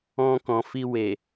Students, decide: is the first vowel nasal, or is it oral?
nasal